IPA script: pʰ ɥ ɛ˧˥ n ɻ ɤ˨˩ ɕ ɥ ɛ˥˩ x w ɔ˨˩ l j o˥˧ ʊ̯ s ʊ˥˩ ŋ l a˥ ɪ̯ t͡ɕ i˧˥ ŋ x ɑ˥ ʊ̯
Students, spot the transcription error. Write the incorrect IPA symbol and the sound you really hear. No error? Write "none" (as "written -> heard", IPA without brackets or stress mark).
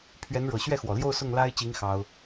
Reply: none